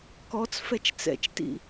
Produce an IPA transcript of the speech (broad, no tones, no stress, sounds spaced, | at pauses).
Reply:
k ɔ t͡s f ɛ t͡ʃ t͡s ɛ̰ t͡ʃ t ḭ